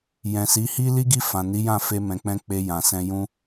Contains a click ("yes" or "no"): no